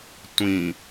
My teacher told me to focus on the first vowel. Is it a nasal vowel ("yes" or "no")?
yes